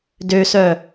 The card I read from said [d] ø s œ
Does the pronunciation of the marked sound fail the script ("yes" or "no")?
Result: no